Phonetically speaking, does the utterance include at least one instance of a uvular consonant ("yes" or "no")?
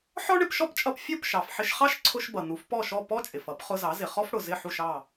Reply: yes